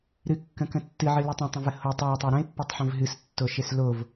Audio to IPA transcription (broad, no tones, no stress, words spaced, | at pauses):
ɾɨkːə̃kə̃ tːɨʕɨlɨ tˤə̃tˤə̃və hotˤ aə̯tˤa ɾə̃ɪ̯pːotˤħə̃v ɦɨstːoʃes lov